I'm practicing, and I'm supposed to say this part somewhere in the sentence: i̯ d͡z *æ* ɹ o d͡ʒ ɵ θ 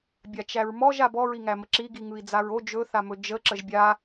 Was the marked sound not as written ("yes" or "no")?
yes